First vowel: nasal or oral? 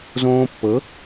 nasal